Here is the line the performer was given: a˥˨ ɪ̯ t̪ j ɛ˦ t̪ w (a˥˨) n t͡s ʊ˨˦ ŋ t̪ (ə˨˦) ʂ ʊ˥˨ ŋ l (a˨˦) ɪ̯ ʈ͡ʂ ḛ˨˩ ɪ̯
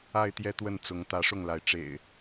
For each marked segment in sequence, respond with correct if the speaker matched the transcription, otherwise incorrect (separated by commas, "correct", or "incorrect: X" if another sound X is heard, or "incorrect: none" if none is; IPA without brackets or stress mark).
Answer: incorrect: ə˥˨, incorrect: ä˨˦, correct